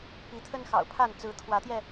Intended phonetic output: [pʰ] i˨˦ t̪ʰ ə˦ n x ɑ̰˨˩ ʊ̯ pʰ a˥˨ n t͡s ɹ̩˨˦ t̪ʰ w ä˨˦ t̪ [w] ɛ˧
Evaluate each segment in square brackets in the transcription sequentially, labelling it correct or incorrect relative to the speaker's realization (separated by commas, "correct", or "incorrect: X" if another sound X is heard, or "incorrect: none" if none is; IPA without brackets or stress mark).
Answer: incorrect: p, incorrect: j